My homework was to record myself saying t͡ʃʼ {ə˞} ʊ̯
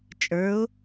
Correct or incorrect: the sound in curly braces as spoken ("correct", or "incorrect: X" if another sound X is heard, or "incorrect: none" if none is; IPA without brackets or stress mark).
correct